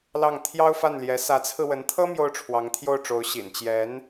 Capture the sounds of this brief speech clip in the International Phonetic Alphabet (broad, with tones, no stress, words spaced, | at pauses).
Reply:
lɑ˥˩ŋ t̪ʰjɑ˥ʊ̯fa˥˩nljɛ˧˥ sä˧˥t͡sʰɹ̩˧wə˧˥nt̪ʰɤ˥ mjo˥˩ʊ̯ʈ͡ʂʰwɑ˧˥ŋt̪ʰjo˥˩ʊ̯ʈ͡ʂo˧˥ʊ̯ ɕḭ˨˩nt͡ɕjɛ˧˥n